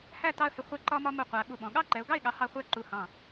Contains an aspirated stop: no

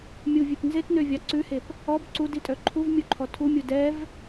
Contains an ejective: yes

